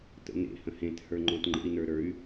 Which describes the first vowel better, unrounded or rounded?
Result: unrounded